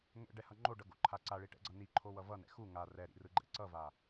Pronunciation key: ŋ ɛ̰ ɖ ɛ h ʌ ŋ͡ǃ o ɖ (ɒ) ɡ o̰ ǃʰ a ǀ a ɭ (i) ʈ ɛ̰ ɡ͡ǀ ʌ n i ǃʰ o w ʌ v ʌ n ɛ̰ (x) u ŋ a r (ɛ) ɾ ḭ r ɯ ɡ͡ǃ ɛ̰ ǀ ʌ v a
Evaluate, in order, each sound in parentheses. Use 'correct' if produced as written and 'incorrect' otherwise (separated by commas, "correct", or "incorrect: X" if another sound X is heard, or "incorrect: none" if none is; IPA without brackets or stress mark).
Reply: incorrect: ʌ, correct, correct, correct